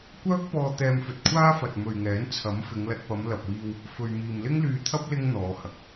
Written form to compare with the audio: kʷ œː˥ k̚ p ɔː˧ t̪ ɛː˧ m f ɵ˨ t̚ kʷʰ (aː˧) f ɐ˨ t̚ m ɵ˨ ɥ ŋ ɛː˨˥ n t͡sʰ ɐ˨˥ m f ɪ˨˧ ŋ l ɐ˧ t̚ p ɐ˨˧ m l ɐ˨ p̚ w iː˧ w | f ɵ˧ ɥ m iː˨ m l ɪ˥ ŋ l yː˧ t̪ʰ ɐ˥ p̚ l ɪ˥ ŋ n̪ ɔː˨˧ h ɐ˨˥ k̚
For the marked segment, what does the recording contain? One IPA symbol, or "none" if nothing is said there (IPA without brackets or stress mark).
aː˥